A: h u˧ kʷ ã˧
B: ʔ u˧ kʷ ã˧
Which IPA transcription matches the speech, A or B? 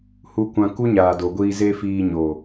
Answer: A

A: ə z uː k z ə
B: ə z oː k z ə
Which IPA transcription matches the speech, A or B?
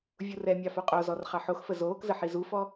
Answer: B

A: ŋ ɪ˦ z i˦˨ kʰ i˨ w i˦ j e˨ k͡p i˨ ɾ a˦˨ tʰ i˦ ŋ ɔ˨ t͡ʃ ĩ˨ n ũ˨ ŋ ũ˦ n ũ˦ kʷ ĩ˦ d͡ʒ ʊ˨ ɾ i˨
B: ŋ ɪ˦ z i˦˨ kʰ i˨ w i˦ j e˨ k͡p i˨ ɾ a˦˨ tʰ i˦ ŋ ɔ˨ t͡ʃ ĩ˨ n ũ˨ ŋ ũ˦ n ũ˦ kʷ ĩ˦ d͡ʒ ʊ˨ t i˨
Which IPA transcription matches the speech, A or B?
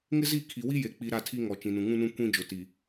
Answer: B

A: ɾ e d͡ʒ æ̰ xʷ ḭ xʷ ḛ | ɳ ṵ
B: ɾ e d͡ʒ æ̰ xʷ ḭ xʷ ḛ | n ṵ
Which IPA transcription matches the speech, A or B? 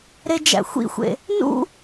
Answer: B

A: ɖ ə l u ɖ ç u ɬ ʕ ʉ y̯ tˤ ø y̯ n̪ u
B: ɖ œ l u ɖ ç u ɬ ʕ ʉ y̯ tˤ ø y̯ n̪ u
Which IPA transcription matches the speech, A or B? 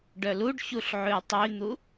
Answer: B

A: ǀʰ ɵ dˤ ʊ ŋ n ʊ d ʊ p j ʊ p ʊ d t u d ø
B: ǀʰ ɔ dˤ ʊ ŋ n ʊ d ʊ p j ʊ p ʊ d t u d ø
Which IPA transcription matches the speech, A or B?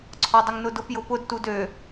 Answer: B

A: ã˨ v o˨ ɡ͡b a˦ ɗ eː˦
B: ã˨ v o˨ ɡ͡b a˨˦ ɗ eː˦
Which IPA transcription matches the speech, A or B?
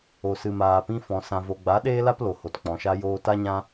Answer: B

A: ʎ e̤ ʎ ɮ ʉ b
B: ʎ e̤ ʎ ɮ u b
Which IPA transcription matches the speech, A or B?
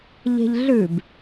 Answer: A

